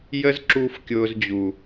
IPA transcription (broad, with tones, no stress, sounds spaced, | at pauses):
j ə˦ z ǁ u˧ f kʲ ʊː˧ z d͡ʑ u˨